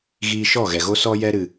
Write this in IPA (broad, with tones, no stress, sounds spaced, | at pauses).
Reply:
ɣ iː˧ ʃ ɔ˦˨ ɣ ɛ˨ ɣ o˦ s ɔ˦ j ɛ˧ ɾ ɨ˨